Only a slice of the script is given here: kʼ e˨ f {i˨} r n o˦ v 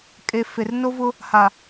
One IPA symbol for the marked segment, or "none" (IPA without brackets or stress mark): e˨